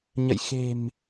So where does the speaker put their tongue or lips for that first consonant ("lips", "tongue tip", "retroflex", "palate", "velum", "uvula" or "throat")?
palate